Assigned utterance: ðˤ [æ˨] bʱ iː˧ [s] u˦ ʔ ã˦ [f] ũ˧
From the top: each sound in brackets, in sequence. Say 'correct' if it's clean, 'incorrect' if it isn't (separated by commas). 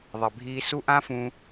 incorrect, correct, correct